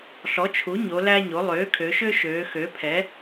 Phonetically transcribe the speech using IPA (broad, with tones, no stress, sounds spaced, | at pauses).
ɬ ɔ˩˥ t͡ʃʰ u˩˥ ɲ o˩˧ l æ˦ ɲ o˩˥ lˠ øː˩˥ kʰ ø˩˧ ʃ ø˦ ʃ øː˩˧ x ø˩˥ pʰ ɛ˩˥